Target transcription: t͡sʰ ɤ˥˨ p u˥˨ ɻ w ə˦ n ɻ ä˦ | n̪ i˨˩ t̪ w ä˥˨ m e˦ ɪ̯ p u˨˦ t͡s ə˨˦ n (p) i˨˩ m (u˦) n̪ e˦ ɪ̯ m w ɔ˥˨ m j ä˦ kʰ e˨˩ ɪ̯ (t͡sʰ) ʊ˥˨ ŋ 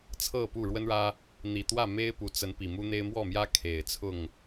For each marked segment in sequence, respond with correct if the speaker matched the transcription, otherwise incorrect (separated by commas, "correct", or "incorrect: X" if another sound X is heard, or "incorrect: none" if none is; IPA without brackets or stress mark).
correct, correct, correct